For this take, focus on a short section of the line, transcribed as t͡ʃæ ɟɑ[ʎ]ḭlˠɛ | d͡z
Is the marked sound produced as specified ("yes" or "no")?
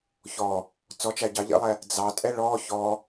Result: yes